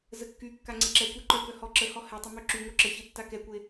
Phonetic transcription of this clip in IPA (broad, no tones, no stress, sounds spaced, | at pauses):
z ə kː y kː a ŋ͡ǀ e ǁ ɛ kʷ ɛ ǃ œ k œ h ɔ ǁ ə h ɔ h ɛ tˤ ə m ø ǁ y ŋ o ǁ ə ç e tː a k ɛ kʷ e